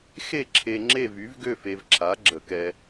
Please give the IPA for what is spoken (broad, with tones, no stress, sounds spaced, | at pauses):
x e˥˧ ǁʰ e˧ ŋ͡ǁ e˥˧ v y˨˥ v ɡ ø˥˧ f e˧ v ǁʰ a˨˥ ɡ͡ǁ ə˧˩˧ k ɛ˧